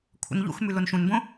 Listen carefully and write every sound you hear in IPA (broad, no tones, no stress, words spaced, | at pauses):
kʷʰə̰nʎṵxmʉ lonʃũnbõ